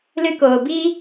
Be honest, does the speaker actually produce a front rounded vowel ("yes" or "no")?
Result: no